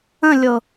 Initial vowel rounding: unrounded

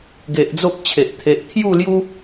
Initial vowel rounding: unrounded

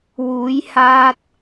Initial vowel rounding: rounded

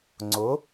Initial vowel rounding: rounded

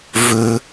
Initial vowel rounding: rounded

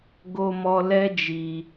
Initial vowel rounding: rounded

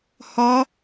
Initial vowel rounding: rounded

